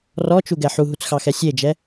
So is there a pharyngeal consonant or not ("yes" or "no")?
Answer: yes